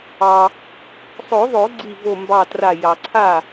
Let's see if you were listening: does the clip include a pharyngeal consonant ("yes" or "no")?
no